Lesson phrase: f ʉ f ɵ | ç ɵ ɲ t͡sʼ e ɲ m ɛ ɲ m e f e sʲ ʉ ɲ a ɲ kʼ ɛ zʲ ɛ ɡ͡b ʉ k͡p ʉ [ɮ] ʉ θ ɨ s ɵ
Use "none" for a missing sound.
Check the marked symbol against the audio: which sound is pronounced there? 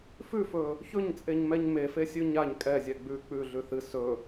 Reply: ɮ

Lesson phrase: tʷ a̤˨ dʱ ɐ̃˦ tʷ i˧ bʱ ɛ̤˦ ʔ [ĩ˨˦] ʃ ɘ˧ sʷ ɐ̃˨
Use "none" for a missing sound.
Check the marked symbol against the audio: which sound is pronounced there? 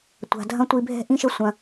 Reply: ĩ˦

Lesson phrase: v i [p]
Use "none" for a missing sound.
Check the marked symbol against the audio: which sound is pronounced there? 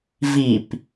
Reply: p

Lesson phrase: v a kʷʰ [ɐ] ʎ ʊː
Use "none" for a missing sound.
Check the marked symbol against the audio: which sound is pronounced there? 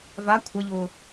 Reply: ɐ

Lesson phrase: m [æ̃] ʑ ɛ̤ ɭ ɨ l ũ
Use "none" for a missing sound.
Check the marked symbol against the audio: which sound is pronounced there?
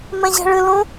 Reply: ɛ̃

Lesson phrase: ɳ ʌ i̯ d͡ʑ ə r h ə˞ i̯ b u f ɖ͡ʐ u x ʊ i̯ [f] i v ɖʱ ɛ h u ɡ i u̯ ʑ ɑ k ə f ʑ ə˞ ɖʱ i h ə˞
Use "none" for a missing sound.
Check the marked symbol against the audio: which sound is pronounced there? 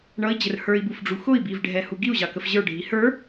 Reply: b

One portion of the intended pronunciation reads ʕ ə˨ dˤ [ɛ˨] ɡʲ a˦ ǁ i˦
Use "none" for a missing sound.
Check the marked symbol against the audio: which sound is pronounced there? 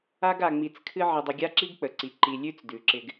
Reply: ɪ˨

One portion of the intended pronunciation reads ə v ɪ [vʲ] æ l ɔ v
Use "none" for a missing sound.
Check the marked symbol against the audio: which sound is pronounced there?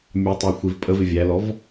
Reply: vʲ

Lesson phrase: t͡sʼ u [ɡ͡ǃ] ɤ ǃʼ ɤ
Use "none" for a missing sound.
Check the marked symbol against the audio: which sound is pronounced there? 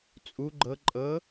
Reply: ɡ͡ǃ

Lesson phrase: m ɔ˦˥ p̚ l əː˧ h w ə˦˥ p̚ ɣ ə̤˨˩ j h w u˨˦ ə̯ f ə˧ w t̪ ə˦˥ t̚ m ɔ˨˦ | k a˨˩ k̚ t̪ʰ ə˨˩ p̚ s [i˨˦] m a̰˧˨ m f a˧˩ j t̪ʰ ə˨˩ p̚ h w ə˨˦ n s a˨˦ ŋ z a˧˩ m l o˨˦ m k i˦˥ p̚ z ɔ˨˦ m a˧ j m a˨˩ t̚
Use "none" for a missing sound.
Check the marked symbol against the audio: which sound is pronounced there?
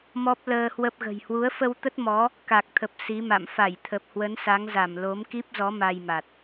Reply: i˨˦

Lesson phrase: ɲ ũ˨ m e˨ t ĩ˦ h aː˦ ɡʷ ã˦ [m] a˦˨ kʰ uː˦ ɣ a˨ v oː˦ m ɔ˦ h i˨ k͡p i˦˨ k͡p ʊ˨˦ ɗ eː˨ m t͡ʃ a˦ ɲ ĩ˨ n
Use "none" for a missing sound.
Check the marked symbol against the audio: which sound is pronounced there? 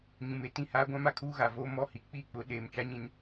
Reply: m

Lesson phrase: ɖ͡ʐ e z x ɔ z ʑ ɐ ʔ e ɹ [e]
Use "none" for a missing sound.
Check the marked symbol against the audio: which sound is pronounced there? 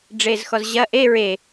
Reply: e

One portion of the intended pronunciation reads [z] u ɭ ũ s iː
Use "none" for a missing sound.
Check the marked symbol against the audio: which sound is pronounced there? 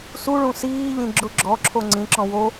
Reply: s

